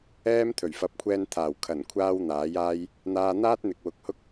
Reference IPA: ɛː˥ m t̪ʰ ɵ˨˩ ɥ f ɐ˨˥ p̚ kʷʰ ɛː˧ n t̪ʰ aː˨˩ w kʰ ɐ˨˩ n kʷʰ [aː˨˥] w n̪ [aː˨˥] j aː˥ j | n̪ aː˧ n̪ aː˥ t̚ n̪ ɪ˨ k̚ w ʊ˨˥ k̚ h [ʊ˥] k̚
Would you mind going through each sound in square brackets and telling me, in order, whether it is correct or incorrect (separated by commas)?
incorrect, correct, correct